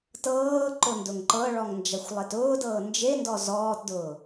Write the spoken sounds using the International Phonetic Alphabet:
t ɤː ǃ ʊ n d ʊ ŋ ǃ ɤ ɭ ɔ ŋ n d͡ʒ a xʷ lˠ e t ʊː d ɤː n d͡ʒ e n d ɔ z ɔː t d ʊː

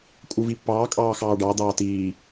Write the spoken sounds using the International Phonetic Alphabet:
kʼ u v i pː ɑː kʼ ɑː x ɑː ɖ ɑ d̪ ɑː t iː

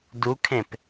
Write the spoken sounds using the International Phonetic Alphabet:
d u kʰ ẽ p

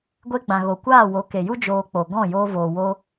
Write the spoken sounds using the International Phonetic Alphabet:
ɡʷ e˧ ɡ͡b ã˨ ɣ o˨ kʷ aː˦˨ w o˨˦ k e˨ j u˦ d͡ʒ oː˧ k͡p o˨ ɡ ɔ̃˦˨ j oː˧ v oː˨ w o˧

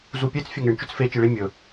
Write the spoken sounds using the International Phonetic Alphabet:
z u pʲ e t͡s fʲ ɵ ŋ e ɳ t͡ʃ ɵ t͡s f e t͡ʃ i ɭ i mʲ ɵ

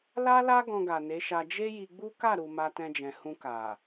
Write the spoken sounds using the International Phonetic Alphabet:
l a˦ l a˦ ɡ ɔ̃˧ ɡ a˨ n e˨˦ ʃ a˧ d͡ʒ e˦ j i˧ ɡ͡b u˦ k a˦˨ ɾ u˨ m a˧ t ɛ̃˧ d͡ʒ ɛ̃˨ h ũ˧ k a˨

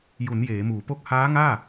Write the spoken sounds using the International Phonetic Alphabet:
j u˩˦ n j eː˩˦ m uː˩˦ p o˥˩ k̚ h aː˦˥ ŋ aː˥˩

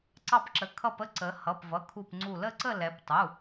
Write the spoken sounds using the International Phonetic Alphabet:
ǀ ɑ˧˩ p ǁ ə˩˧ kʰ ʌ˧˩ p ə˥˨ ǀ ə˩˧ h ʌ˩˧˩ p v ʌ˩˧˩ kʰ u˧˩ p ŋ͡ǀ u˧˩ l ə˥˨ ǀ ə˥˨ l ɛ˩˧ p tˤ u˩˧˩

